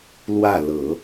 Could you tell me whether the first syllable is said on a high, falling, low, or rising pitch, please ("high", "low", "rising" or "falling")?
falling